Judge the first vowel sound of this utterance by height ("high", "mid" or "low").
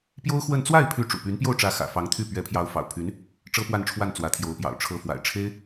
mid